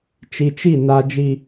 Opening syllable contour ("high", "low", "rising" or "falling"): low